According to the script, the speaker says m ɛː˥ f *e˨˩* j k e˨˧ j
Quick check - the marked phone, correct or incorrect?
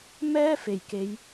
correct